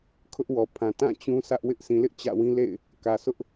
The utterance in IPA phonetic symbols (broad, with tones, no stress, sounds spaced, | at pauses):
kʰ ʊ˦ ʔ w ɔ˨ pʰ ã˨ t ã˦˨ t͡ɕ ũ˦ s ä˦ ʔ w ɪ˦ ʔ s ĩ˨ l ɪ˦ ʔ t͡ɕ ä̰˦˨ w ĩ˦ l ḛ˦˨ ɪ̯ | k ä˨ s ʊ˦ ʔ